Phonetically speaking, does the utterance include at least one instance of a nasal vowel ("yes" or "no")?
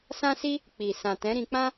yes